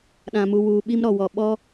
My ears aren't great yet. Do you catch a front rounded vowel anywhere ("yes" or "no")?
no